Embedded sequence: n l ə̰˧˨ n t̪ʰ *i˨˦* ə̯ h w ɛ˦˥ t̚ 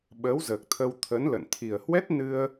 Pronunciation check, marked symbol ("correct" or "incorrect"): incorrect